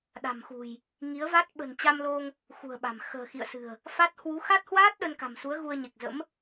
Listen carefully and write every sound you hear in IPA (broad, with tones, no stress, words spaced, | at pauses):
ɗa̤˨˩mxṳ˨˩j | ŋi˨˦ə̯va˦˥t̚ ɓə̤˨˩nt͡ɕa˧mlo˧ŋ | xṳ˨˩ə̯ɓa̤˨˩m xə̤ː˨˩xḭ˧˨ə̯sɨ̤˨˩ə̯ | fa˦˥t̚ hwu˨˦xa˦˥t̚hwaː˦˥t̚ ɗə˧nka̤˨˩msu˨˦ə̯ ɣu˧ə̯ɲe˨˩k̚zə̰˧˥m